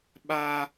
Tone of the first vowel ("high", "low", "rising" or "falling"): high